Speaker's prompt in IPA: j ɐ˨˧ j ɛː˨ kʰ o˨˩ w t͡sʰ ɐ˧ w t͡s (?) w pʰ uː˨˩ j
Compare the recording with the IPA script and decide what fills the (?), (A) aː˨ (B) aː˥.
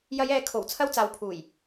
A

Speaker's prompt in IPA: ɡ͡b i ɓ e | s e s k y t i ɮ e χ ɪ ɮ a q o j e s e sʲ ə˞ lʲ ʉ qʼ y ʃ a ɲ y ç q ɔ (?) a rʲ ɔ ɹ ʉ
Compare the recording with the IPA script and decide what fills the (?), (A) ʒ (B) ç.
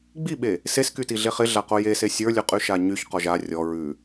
A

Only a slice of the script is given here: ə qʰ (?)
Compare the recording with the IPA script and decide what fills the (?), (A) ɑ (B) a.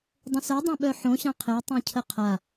B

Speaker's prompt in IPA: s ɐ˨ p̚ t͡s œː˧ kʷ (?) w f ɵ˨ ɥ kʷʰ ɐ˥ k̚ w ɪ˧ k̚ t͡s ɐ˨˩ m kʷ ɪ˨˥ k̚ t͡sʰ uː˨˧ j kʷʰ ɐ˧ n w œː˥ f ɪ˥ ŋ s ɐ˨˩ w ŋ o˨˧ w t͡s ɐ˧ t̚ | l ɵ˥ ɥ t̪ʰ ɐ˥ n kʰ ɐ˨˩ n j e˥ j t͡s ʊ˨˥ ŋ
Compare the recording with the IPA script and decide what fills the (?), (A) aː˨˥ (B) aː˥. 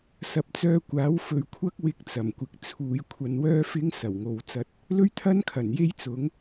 A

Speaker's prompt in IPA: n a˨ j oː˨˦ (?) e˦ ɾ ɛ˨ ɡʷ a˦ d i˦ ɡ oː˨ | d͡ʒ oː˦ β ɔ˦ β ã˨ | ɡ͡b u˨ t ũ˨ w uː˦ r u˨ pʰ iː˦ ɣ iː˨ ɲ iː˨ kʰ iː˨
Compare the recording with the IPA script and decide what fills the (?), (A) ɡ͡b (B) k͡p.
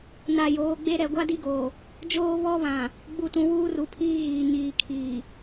A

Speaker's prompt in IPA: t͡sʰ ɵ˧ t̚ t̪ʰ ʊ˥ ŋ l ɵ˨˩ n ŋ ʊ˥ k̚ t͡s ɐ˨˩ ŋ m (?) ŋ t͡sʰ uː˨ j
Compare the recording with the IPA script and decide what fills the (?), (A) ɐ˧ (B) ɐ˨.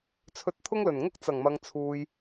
B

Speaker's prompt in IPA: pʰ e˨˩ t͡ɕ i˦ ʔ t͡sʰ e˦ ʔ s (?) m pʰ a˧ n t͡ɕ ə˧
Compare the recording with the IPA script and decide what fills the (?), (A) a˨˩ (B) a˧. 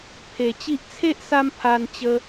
B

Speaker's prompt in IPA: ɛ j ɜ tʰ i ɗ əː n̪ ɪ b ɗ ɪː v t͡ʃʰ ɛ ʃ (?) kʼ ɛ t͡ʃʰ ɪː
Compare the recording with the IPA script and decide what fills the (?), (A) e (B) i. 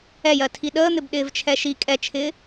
B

